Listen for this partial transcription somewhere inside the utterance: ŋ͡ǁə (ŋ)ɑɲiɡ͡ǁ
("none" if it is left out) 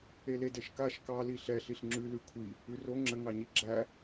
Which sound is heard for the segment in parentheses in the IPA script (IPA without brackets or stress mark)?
ŋ